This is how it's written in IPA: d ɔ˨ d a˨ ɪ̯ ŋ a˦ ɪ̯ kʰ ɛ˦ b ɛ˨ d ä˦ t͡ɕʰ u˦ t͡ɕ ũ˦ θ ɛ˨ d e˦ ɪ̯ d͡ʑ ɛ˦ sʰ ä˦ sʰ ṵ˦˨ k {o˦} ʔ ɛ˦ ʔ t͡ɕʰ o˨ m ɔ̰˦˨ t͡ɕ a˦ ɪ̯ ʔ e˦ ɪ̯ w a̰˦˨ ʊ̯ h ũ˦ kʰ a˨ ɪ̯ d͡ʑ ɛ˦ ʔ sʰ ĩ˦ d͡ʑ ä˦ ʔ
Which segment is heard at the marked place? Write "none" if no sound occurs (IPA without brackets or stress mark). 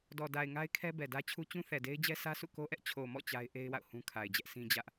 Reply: o˦